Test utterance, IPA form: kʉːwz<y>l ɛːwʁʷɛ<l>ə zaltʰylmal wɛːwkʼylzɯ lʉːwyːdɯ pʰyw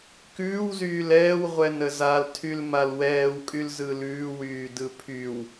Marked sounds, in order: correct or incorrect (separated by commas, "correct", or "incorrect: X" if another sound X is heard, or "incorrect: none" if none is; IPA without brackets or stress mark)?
incorrect: yː, incorrect: n